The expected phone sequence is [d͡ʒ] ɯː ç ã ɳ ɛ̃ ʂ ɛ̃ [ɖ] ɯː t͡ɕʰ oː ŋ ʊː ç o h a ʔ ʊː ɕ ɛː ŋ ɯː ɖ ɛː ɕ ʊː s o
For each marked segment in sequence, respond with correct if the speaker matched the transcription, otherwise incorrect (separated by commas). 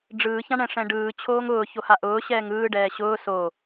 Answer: incorrect, correct